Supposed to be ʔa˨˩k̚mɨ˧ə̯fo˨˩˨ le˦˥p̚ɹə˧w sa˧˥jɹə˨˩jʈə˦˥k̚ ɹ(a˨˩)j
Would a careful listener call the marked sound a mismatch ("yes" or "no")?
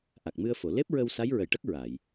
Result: yes